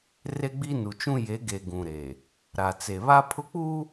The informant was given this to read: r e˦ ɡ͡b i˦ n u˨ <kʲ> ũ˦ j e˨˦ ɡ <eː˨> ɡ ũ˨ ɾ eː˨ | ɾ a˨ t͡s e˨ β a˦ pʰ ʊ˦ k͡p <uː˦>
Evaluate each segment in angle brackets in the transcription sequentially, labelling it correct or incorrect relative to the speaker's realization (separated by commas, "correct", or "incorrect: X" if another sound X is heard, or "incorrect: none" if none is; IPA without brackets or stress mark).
incorrect: t͡ʃ, incorrect: e˨, correct